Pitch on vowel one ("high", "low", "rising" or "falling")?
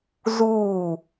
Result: falling